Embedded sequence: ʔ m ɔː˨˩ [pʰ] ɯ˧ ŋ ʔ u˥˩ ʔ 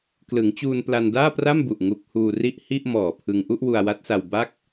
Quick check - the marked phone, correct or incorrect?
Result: correct